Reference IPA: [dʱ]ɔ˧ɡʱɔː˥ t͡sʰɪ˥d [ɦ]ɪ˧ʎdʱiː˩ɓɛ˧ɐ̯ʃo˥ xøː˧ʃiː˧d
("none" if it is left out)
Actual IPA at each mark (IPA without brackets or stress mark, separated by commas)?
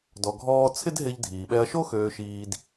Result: d, ɦ